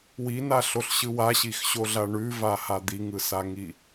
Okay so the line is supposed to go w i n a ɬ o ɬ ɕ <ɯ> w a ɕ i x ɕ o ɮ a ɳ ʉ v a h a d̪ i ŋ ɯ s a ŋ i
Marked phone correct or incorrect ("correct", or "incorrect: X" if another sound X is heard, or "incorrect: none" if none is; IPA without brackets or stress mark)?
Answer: correct